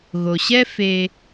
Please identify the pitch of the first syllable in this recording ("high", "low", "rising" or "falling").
low